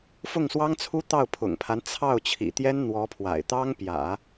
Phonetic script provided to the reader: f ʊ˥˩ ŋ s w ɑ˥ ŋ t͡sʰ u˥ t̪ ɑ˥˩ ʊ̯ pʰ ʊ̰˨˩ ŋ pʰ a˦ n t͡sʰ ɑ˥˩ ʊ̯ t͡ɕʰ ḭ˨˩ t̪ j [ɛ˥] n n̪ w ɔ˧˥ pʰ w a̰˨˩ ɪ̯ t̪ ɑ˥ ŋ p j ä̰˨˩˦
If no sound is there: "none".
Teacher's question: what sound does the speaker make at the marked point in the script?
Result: ɛ˥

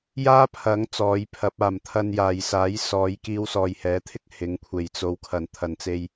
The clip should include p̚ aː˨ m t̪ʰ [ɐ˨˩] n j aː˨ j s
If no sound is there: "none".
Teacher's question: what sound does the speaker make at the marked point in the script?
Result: ɐ˧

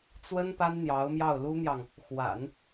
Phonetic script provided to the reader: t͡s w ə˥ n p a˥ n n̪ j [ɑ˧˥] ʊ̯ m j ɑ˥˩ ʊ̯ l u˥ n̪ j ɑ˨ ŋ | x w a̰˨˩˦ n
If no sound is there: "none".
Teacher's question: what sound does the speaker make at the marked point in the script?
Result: ɑ˧˥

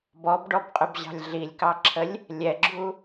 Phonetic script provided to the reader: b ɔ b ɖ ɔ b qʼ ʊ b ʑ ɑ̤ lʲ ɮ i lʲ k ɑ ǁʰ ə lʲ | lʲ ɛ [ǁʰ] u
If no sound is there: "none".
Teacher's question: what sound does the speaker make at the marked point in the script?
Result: ɡ͡ǁ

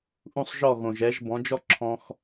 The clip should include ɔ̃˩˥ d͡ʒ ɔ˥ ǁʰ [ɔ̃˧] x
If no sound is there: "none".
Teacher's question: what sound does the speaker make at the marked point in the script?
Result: ɔ̃˧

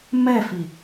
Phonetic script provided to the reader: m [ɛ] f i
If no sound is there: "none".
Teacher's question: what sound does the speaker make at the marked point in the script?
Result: ɛ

